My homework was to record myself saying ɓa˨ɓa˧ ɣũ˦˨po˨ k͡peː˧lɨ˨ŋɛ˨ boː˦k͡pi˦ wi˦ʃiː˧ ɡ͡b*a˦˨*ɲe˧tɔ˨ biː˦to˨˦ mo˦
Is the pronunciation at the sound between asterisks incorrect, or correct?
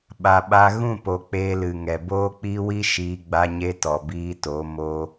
incorrect